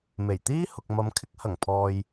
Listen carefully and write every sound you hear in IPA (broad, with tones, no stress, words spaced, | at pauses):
me˨˩jt̪iː˥ hʊ˨k̚mɐ˨˧m kʰɪ˧k̚hɐ˨˩ŋ pʰɔː˧j